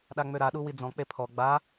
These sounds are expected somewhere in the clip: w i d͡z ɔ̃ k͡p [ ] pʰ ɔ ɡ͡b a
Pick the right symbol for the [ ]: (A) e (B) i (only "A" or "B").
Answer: A